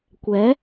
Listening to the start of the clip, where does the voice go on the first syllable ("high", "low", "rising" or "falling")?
rising